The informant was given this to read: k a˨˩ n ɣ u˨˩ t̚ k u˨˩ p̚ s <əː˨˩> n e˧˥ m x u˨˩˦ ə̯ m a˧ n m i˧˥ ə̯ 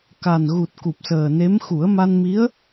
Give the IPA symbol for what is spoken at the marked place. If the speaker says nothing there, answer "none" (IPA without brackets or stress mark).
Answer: əː˨˩